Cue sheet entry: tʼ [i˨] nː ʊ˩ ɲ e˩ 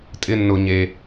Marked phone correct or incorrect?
incorrect: ɪ˨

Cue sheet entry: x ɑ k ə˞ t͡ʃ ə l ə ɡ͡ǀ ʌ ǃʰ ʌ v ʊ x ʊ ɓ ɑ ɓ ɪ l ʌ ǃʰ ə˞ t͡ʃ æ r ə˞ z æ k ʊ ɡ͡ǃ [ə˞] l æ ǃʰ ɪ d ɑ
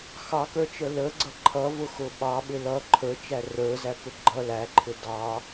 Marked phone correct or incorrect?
incorrect: ʌ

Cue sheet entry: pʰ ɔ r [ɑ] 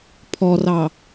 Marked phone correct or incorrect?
correct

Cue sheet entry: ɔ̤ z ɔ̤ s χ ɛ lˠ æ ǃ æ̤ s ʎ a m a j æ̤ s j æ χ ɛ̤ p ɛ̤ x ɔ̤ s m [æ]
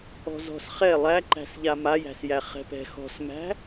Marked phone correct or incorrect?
incorrect: æ̤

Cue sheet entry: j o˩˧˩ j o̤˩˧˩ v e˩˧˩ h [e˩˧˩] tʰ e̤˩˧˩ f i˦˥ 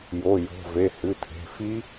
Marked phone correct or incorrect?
incorrect: ɨ˩˧˩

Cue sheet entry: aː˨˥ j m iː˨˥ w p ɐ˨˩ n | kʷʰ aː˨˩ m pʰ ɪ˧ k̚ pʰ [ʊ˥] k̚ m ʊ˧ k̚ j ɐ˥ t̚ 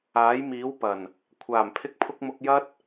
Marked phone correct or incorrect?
incorrect: ʊ˧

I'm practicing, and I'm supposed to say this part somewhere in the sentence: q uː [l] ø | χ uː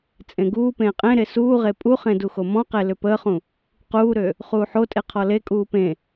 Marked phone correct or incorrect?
incorrect: ɾ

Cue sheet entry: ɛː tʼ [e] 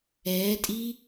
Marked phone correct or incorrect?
incorrect: i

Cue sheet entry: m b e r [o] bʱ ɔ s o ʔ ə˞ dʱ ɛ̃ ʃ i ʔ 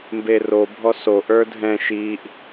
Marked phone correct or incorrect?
correct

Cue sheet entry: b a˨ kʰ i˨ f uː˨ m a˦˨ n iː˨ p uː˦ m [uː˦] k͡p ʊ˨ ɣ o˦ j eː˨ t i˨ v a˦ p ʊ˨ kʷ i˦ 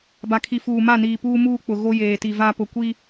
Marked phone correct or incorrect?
correct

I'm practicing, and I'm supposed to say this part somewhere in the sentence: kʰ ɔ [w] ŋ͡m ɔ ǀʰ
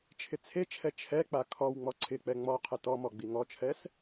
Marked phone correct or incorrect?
correct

